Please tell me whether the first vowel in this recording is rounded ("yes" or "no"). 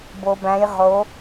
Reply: yes